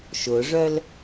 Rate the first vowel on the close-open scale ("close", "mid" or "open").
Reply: close